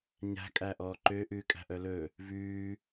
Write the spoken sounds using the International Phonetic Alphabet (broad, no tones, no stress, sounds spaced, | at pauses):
ɲ æ̤ kʼ æ ʔ ɔː ǃ ø ʔ ʉː kʼ æ̤ ʔ œ l ɵ | v ʉː